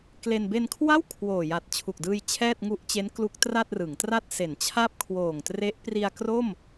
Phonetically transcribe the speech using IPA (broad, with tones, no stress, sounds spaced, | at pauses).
k l e˧ n b e˧ n kʰ w a˥˩ w kʰ w oː˨˩ j a˨˩ t̚ t͡ɕʰ u˨˩ k̚ d ɯː˧ j t͡ɕʰ ɛː˥˩ t̚ ŋ u˦˥ ʔ t͡ɕ e˦˥ n k l u˦˥ k̚ t r a˥˩ t̚ r ɯ˩˦ ŋ t r a˥˩ t̚ s e˩˦ n t͡ɕʰ a˥˩ p̚ kʰ w oː˨˩ ŋ t r e˦˥ ʔ p r i˧ a̯ k r o˥˩ m